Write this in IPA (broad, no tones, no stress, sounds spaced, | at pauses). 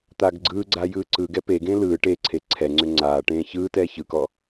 t̪ a ɡ ɡ͡ǀ ɯː ɡ͡ǀ a j ɯː ǀ ɯ ɡ ɛ p e ɡ ẽ l ɯː ʈ e ǀʰ e ǀʰ ɛ ŋ͡ǀ ʏ ŋ͡ǀ aː ʈ ẽː ç ɯː t ɛː ç ɯ k ɔ